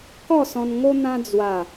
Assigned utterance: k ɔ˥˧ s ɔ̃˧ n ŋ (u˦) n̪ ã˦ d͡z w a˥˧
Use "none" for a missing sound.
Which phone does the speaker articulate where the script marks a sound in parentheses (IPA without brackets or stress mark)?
o˦